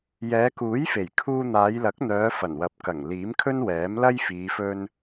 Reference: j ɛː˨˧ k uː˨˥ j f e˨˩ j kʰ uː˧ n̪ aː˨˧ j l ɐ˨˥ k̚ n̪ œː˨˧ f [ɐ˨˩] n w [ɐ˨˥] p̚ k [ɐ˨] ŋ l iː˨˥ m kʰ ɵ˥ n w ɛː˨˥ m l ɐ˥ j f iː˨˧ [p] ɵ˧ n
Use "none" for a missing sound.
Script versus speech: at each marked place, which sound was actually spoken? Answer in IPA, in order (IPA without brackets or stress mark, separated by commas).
ɐ˨˩, ɐ˨˥, ɐ˨˩, f